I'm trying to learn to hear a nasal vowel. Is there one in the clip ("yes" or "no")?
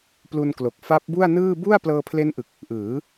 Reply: no